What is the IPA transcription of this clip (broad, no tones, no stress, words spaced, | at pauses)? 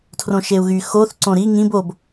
tʰrõʃeu̯ɣy xoθ ǀõɾi ŋĩb ob